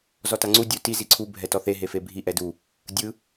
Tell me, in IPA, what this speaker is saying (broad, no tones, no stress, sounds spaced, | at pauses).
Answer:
z ɔ t a ŋ͡ǀ u dʲ u t i z i ǀʰ u bʱ ɛ t ɔ θ e ɦ e f e bʱ i ʔ ɛ d u | dʲ ɯ